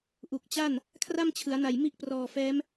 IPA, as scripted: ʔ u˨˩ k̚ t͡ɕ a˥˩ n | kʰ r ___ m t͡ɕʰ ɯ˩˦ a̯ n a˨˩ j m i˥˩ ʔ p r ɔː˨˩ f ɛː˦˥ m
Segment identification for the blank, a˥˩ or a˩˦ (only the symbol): a˥˩